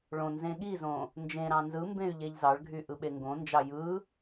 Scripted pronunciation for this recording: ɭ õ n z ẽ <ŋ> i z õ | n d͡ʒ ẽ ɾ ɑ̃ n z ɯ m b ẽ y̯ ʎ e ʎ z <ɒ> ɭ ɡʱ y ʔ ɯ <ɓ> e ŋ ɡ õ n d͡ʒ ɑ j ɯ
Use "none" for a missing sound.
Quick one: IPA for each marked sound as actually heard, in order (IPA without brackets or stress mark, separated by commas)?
ɠ, ɑ, ɓ